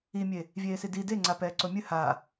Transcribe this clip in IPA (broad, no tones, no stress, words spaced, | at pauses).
imʲe | vʲeːsidi deŋ͡ǀa pɛːǀomʲɨ ha